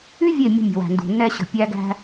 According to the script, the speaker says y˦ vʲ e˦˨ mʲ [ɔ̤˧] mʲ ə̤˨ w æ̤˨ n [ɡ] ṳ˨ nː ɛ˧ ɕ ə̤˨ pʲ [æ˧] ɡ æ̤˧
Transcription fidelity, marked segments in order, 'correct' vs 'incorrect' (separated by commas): incorrect, incorrect, correct